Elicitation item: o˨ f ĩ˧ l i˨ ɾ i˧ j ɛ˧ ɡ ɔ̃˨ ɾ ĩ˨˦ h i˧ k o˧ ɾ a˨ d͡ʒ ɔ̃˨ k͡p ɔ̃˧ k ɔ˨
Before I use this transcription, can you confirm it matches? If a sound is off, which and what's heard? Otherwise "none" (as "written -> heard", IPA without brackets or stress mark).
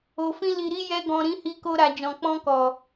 none